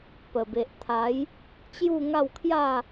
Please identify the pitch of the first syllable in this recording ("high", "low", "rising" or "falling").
low